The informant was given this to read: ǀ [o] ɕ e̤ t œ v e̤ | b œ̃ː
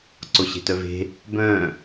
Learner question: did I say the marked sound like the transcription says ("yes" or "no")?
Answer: yes